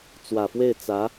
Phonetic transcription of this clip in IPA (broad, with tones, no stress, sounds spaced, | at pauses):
t͡s w ä˨˩ f w e˥˩ ɪ̯ t͡s ä˧˥